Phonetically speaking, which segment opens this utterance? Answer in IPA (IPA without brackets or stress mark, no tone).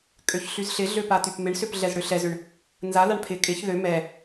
kʼ